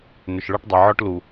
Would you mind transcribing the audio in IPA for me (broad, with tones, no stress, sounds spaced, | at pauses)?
n ʏ˨ ʃ ɭ ɒ˦ ʈ dˤ ɐ˨ ʕ ɔ˦ ʈ l u˨